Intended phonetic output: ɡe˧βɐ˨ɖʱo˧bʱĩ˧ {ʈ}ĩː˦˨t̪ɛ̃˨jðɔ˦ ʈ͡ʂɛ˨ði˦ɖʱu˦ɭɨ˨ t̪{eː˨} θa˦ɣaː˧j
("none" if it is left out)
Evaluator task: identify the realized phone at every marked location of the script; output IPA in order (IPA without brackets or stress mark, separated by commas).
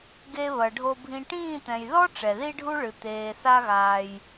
ʈ, eː˨